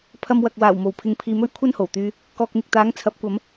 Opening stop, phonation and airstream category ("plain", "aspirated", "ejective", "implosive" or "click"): aspirated